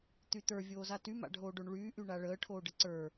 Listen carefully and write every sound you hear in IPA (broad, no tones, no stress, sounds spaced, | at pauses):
t̪ y t̪ ə˞ vʲ oː z a t y m a̰ ɖʱ oː ɖ o ɳ ɭ yː ʔ y ɳ a ɭ əː ʈʰ oː ɖ ə ǀ ə˞